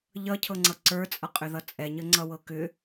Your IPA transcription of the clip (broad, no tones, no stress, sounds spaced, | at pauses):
ʎ ʌ cʰ ɤ ŋ͡ǀ ʌ ǀ ə˞ t͡sʼ ʌ qʼ ʏ ð ʌ t͡sʼ ɛ ɲ ə ŋ͡ǀ ʌ w ɤ k ʏ